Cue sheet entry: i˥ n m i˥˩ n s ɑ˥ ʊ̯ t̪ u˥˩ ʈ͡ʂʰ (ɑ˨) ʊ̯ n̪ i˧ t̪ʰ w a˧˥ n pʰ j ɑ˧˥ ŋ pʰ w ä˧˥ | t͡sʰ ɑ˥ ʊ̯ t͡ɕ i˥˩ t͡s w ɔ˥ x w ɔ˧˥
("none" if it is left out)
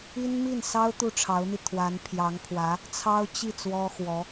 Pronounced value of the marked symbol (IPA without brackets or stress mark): ɑ˧˥